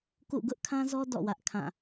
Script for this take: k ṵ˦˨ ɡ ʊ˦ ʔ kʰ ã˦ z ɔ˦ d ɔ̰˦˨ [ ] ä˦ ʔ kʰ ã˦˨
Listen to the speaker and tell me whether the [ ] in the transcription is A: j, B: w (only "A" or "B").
B